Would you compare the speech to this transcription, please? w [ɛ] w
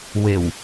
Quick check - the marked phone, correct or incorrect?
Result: incorrect: e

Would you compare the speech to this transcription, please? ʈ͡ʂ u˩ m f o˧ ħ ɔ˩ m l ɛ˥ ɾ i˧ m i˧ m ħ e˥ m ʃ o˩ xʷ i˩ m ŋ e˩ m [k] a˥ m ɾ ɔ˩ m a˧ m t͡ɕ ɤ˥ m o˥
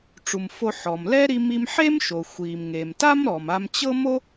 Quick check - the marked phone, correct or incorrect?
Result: incorrect: t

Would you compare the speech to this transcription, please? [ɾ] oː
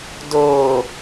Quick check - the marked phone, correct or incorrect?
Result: incorrect: d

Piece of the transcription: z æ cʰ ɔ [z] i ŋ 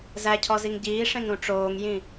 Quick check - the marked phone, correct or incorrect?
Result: correct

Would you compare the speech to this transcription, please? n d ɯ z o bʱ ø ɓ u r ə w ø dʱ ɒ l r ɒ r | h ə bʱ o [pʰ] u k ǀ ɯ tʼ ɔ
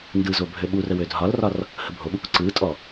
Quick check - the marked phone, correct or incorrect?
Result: incorrect: ɓ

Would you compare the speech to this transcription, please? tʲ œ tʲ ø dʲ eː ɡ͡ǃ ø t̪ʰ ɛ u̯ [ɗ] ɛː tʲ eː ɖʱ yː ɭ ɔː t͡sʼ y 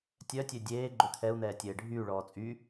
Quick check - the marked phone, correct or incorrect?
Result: incorrect: n̪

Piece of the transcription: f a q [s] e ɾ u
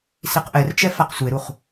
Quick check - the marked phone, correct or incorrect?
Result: incorrect: sʷ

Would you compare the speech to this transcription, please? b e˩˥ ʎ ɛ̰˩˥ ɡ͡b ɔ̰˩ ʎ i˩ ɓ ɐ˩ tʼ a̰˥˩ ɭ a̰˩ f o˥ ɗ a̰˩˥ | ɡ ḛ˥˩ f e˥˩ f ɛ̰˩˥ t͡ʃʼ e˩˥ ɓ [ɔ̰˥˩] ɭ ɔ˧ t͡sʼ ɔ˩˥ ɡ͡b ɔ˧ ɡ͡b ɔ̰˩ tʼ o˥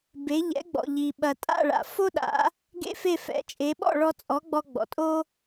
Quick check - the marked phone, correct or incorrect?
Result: correct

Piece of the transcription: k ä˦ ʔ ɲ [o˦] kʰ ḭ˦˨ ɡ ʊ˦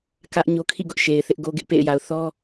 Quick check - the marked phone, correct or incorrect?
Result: correct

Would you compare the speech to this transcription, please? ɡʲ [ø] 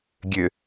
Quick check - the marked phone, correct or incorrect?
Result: correct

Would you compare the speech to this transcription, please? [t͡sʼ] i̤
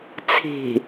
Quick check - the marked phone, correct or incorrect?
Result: incorrect: t͡sʰ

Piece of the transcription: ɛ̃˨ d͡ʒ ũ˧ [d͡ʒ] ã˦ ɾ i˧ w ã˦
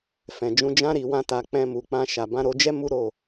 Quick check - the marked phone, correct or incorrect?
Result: correct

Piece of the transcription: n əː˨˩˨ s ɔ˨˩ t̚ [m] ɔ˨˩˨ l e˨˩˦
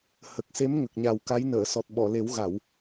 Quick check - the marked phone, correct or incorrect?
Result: incorrect: ɓ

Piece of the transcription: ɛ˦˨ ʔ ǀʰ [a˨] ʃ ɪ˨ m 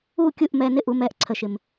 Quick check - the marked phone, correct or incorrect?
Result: incorrect: ə˨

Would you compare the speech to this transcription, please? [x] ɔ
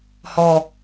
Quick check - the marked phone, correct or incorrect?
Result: incorrect: h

